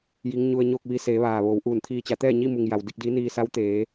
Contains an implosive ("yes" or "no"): no